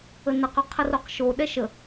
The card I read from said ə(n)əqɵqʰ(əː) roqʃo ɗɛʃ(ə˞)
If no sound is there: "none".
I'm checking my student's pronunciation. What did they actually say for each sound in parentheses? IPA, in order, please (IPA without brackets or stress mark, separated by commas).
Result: n, ə, ə